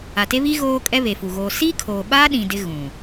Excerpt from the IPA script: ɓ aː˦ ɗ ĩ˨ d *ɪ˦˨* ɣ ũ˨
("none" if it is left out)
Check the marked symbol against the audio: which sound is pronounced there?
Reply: ɪ˦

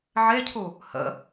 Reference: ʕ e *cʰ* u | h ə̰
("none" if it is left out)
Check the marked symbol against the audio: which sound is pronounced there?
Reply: cʰ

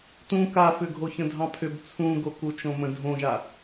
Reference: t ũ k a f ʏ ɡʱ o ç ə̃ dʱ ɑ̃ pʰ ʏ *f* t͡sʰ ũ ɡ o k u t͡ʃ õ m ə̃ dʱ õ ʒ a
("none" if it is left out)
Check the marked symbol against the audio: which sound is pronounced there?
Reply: b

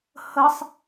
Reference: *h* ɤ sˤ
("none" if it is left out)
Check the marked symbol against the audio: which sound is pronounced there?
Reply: h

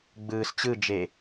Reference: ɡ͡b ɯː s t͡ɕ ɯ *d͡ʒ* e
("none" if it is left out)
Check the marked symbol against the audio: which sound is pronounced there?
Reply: d͡ʒ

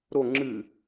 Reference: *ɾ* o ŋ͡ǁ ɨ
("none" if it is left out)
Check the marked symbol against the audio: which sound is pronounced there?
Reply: ɾ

